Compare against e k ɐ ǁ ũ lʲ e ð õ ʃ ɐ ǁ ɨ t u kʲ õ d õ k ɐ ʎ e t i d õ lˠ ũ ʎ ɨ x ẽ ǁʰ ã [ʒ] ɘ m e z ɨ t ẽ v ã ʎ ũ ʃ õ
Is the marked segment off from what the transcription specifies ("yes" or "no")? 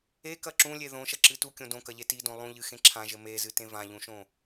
no